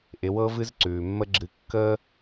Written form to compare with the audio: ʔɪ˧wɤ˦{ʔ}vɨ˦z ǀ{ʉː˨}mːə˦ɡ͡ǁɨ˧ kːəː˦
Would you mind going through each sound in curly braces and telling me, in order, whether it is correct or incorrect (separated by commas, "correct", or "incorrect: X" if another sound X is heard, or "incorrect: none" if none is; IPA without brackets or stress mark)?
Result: incorrect: none, correct